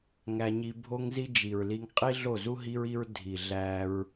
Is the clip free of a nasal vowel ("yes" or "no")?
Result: yes